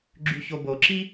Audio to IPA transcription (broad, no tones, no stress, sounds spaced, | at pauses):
ɡ͡ǁ y ç o b o ǁ i